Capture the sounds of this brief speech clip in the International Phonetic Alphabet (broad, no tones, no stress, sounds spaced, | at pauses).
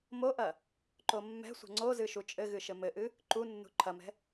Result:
m o ʔ ɐ | ǃ o mː ɛ̤ sʷ ɛ̤ ŋ͡ǀ o z ɨ ʃ u t͡ʃʼ ɘ ɣ ɨ ʃ ɘ m ɘ ʔ ɨ | ǃ u nː ṳ ǃʰ ɐ m ɛ̤